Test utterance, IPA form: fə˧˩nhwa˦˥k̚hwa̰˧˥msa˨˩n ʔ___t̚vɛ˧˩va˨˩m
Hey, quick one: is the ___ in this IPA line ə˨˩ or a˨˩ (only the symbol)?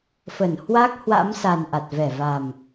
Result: a˨˩